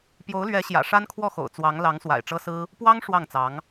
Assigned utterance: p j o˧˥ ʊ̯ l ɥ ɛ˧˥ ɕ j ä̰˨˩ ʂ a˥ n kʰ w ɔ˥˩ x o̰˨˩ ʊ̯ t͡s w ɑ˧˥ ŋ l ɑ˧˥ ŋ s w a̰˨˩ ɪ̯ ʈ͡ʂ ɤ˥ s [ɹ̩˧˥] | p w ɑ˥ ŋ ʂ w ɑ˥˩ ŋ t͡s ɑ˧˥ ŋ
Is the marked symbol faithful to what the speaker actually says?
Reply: no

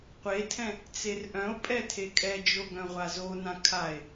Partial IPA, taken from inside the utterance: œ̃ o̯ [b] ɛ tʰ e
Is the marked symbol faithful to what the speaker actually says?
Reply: no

